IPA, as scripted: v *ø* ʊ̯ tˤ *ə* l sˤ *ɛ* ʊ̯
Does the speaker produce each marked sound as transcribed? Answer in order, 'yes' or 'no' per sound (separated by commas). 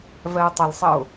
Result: no, yes, no